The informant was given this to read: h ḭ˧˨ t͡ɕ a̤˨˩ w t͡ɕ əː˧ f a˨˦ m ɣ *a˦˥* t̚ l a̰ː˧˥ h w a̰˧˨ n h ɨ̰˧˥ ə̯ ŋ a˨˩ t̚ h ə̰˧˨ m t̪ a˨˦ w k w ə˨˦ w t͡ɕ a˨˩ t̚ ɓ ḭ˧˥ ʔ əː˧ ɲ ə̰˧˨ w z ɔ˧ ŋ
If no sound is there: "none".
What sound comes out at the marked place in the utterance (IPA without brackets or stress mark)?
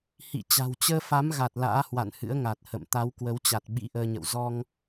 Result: a˨˩